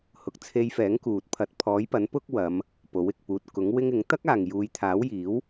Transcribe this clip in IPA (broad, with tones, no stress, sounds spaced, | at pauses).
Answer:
h ʊ˨˥ k̚ t͡sʰ e˧ j f ɛː˨˥ ŋ k uː˨ t̚ pʰ ɐ˧ t̚ pʰ ɔː˨˥ j p ɐ˨˥ n p ʊ˥ k̚ w ɐ˨˧ m | p o˨˥ w ɪ˨ k̚ p uː˧ t̚ k ʊ˨˥ ŋ w ɪ˥ ŋ ɪ˨˥ ŋ t̪ ɐ˥ k̚ aː˨ ŋ j uː˨˧ j t̪ʰ aː˨˥ w j iː˨˥ w